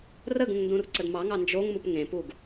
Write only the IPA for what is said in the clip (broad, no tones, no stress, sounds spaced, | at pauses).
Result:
r ə ɡ ũ ŋ n d ũ r ǀ ə d m ɑ ŋ ɑ n d͡ʒ o ŋ m u p ŋ ẽ p u ɡ